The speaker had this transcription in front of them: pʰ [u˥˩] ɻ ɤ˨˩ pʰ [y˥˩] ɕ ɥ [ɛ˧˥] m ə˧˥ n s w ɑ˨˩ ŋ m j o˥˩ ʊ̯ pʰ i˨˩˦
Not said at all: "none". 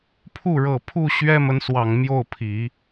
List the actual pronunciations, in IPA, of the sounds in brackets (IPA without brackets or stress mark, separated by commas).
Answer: u˥˩, u˥˩, ɛ˥